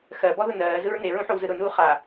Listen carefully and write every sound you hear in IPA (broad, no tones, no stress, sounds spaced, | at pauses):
x ɜ b ɔ ð ʊ n ɜː z ɯ ɹ n e ɹ ũ ħ o w z ɯ ɾ ʊ n uː χ a